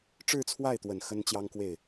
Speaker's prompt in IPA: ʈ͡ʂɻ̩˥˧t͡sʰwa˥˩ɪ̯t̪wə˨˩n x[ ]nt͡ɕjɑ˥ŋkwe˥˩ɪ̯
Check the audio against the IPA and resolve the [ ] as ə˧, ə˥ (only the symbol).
ə˥